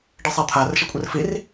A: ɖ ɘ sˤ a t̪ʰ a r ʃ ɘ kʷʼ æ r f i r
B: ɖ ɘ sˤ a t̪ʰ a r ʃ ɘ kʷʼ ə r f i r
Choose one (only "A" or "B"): B